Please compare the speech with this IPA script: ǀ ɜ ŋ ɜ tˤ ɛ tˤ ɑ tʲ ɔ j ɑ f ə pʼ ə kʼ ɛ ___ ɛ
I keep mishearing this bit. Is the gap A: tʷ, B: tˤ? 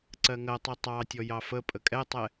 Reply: B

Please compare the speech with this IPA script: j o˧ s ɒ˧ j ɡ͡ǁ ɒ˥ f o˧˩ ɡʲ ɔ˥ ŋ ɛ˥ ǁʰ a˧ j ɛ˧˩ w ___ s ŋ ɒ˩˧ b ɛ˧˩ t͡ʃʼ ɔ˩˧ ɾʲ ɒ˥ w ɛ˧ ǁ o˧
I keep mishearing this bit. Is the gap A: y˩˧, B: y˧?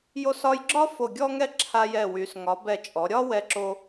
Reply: A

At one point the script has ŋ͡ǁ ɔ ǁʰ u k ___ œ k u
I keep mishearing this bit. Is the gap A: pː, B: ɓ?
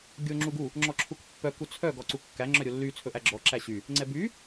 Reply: A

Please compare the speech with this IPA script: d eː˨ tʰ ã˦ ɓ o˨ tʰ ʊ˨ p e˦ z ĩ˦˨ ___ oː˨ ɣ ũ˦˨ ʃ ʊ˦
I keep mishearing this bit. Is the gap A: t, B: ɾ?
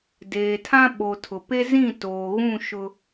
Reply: A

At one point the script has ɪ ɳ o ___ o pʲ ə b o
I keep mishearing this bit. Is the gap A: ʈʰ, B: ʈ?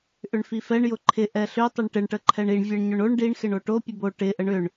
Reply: B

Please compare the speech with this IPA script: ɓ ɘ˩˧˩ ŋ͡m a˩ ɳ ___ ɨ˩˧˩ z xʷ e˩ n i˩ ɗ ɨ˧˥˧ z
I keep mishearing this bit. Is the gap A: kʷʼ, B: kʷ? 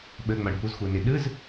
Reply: B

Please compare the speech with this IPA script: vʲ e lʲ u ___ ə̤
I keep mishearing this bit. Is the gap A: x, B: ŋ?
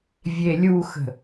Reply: A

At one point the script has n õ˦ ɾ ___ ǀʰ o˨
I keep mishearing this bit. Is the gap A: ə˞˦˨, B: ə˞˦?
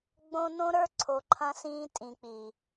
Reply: B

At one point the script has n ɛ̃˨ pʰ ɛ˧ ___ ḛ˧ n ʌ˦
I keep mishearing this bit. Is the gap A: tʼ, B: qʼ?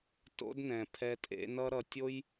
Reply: A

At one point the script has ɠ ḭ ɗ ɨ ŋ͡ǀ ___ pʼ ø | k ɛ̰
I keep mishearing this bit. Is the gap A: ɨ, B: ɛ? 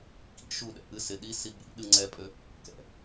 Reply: B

